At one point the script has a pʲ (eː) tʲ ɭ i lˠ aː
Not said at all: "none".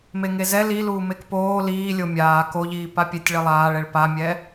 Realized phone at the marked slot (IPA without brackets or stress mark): e